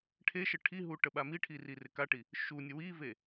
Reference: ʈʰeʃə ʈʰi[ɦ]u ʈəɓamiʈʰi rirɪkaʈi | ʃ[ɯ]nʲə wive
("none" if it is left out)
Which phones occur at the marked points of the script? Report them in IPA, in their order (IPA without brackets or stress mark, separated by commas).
ɦ, u